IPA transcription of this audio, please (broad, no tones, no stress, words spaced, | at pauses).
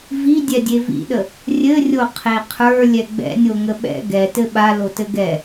vi dʲɛdʲevḭɗə | rʲɘrʲo qʰeqʰə˞ lʲɛɡ͡bɛ̰nʲoŋə ɓɛ̰ ɡɛ tɘɓa lotɘɡɛ